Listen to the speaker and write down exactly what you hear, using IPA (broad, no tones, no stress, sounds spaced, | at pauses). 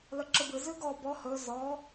l ə ǁ ɯ b ɨ z ʉ ɡ ɔ b ɔ h ɵ z ɔ